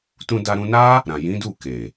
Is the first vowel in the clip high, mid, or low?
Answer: high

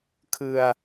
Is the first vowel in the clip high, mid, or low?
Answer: high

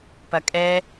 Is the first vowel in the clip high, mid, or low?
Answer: low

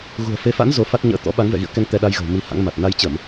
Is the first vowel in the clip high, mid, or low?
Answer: high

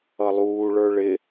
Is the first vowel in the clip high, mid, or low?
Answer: mid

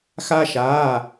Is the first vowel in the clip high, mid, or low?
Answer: low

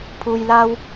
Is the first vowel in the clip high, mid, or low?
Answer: high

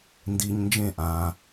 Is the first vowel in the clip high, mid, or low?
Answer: high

